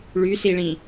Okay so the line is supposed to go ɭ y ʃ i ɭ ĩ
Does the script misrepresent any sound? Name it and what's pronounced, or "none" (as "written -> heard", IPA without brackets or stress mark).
ʃ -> s